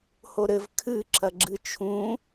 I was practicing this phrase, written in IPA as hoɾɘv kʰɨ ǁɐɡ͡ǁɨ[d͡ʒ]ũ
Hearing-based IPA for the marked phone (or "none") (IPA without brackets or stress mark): t͡ʃʰ